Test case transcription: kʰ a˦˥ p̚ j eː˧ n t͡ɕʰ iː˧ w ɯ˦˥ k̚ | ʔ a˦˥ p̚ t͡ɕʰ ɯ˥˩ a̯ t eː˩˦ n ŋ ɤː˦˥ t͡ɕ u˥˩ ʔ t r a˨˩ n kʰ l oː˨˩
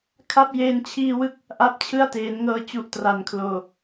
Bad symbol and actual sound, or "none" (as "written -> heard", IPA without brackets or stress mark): none